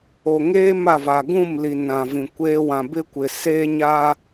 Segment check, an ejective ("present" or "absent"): absent